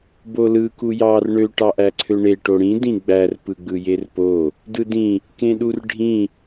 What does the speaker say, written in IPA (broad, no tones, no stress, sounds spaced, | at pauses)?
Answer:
b o l ɯ k u j ɑ r ɳ ø ʈ ɑ ʔ æ ǀʰ ø ɳ e ʈ o ɽ ĩ d ĩ ɡ͡b æ r p ɯ ɡ͡b ɯ j e r p o | d ɯ d ĩ | k ẽ ɗ u r ɖʱ ĩ